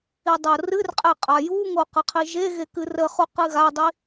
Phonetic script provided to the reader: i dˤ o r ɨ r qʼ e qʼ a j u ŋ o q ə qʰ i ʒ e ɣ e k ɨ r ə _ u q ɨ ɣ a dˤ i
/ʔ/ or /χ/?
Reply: χ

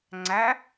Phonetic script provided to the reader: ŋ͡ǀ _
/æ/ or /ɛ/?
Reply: æ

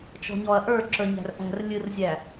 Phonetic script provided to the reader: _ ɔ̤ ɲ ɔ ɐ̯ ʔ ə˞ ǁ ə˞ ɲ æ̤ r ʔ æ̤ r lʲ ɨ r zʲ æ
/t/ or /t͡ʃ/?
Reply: t͡ʃ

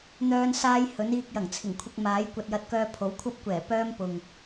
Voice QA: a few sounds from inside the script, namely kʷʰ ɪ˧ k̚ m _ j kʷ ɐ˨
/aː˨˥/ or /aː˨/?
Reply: aː˨˥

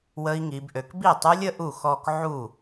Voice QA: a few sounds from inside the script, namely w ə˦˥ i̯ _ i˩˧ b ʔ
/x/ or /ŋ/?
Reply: ŋ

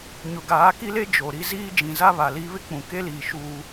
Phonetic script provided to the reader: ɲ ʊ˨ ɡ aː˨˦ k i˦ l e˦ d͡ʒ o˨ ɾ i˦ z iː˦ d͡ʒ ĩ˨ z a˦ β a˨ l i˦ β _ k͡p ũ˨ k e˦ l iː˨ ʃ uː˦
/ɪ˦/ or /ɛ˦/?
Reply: ɪ˦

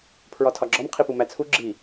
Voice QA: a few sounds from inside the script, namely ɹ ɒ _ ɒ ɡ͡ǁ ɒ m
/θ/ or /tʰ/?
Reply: tʰ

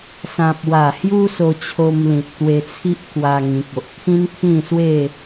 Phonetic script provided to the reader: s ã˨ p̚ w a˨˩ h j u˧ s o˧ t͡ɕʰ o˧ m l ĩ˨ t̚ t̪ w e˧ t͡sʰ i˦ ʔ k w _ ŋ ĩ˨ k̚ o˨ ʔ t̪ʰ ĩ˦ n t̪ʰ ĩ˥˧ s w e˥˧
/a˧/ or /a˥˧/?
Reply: a˧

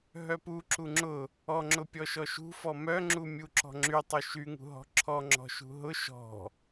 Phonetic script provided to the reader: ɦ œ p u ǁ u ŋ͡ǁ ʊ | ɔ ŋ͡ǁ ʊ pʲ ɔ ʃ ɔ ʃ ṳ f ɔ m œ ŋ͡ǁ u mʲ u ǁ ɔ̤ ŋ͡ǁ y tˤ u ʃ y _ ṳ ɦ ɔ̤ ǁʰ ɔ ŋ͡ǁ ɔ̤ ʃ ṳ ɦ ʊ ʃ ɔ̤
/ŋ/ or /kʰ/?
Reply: ŋ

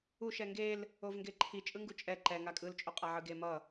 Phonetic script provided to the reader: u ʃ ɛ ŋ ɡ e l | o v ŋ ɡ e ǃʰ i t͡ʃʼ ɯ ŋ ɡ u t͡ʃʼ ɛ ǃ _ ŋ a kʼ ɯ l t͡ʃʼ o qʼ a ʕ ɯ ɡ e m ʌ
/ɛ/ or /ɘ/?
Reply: ɛ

